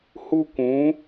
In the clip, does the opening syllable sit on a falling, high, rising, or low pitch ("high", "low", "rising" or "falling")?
high